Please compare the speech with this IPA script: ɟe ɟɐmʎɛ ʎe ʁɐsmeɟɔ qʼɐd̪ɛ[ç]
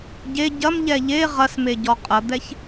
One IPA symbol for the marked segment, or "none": ç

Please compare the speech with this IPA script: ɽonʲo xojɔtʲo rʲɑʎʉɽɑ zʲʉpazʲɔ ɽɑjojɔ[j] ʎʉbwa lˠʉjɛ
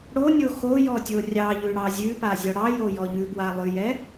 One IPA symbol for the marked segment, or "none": none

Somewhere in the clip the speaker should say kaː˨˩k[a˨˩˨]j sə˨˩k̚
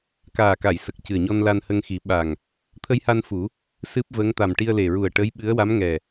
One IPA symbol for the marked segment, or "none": a˨˩˨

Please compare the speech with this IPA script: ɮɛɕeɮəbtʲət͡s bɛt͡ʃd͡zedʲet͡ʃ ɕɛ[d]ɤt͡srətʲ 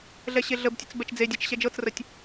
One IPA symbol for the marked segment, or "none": d͡ʒ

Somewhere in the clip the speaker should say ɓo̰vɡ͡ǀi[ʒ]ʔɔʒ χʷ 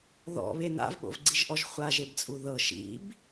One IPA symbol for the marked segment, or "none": ʒ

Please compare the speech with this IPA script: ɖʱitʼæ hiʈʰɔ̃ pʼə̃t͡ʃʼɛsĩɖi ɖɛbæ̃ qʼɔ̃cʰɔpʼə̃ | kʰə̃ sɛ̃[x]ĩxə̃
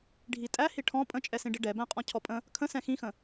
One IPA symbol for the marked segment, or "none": x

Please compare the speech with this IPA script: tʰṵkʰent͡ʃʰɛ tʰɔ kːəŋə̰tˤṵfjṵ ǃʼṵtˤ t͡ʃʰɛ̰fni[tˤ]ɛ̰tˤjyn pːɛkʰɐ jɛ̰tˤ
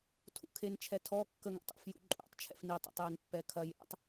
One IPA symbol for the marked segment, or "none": tˤ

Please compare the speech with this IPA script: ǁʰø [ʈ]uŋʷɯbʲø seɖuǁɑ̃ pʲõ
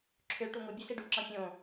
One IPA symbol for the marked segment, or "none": ʈ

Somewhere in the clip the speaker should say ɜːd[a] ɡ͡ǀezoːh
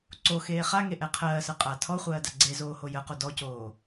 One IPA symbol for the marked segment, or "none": a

